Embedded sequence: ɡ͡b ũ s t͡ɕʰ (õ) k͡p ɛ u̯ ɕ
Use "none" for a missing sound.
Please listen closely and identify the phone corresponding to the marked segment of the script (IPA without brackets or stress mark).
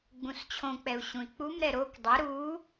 õ